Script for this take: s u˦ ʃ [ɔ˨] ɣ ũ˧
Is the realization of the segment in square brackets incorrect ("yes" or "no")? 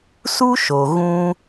yes